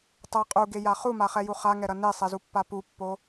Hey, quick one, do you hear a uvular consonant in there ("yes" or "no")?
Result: yes